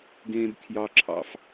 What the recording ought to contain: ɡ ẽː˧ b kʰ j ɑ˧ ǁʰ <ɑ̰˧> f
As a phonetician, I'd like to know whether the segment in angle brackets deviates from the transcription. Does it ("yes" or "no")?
no